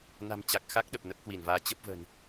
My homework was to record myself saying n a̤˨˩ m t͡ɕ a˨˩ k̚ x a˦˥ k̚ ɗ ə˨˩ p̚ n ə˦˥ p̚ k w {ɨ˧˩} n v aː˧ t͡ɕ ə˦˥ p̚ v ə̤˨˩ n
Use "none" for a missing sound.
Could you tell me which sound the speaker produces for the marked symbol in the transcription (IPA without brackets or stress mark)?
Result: i˧˩